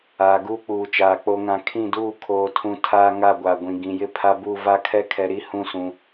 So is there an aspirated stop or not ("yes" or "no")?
yes